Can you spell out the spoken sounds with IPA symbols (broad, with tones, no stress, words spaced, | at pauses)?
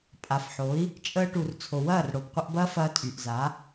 pʼa˨fħo˨˦i̯ | t͡ʃʼəː˧ʈu˨r t͡sʰo˨wɐː˦˨rɽo˨b qʷə˧ʔbɐː˦fɐː˧ tʼy˨ʔza˨˦